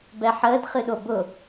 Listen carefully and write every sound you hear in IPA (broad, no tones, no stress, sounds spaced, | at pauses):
b ɛ ħ əː d χ ɨ ɗ o b ʊ